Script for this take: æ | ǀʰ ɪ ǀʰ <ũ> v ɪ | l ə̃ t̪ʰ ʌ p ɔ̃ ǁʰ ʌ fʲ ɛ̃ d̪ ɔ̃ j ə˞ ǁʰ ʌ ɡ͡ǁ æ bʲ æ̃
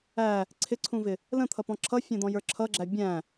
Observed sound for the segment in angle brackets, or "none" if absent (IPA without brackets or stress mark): ũ